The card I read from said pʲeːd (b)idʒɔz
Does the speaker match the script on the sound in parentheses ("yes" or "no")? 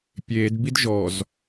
yes